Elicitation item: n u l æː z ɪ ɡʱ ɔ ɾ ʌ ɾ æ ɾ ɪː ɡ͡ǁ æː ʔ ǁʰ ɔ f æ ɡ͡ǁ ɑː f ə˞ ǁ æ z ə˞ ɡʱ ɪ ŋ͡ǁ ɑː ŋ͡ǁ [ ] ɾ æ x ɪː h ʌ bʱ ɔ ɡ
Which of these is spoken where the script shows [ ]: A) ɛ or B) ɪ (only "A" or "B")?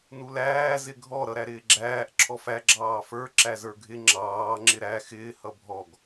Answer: B